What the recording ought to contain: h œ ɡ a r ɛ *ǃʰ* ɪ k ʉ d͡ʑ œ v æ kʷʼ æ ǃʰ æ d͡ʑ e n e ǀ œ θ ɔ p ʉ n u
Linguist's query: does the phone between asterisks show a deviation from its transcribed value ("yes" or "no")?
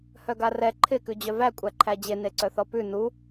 no